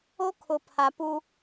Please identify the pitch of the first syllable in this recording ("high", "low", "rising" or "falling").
high